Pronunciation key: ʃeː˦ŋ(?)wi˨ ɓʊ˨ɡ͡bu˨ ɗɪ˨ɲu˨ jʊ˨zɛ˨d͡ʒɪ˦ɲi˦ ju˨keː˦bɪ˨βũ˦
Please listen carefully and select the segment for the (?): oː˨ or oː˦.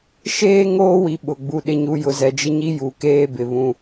oː˦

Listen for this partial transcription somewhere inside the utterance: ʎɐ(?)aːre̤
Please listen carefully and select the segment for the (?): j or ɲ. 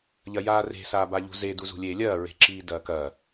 j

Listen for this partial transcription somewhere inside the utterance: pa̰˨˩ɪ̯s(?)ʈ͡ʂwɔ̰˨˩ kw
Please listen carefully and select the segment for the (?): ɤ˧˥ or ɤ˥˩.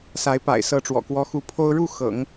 ɤ˧˥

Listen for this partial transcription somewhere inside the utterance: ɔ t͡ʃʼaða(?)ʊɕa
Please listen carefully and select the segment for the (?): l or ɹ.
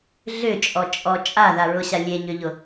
ɹ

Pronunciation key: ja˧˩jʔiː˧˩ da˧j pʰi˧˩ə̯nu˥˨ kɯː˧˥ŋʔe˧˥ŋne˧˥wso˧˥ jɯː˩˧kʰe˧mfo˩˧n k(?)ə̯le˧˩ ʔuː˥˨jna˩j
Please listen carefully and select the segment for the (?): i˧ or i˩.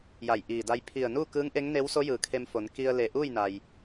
i˧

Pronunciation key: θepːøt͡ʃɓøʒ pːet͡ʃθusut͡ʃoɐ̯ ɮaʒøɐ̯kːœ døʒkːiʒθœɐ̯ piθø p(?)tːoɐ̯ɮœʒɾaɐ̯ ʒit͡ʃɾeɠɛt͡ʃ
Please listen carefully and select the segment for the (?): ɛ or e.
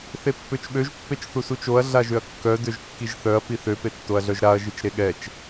e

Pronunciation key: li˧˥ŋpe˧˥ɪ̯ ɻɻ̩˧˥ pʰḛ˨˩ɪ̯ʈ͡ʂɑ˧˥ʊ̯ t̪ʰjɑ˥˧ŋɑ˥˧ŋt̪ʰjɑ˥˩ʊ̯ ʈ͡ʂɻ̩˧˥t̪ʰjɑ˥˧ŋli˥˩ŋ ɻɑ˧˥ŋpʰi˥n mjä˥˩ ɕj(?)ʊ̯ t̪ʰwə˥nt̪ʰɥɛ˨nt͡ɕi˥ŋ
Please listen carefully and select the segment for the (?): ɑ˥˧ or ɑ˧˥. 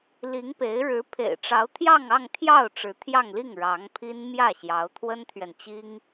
ɑ˧˥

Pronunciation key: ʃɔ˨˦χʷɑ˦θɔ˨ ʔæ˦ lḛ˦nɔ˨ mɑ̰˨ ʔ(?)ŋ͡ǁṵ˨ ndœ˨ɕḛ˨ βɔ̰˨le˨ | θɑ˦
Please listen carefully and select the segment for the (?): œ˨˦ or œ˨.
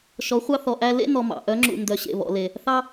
œ˨˦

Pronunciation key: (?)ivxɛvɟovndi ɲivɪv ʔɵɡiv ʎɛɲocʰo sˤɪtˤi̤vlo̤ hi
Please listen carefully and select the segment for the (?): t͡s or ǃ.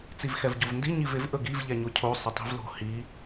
t͡s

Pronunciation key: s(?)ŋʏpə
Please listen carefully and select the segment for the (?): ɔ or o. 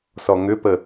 ɔ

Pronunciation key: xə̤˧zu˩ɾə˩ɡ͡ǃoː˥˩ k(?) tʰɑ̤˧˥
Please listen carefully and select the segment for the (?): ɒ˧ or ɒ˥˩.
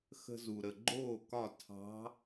ɒ˥˩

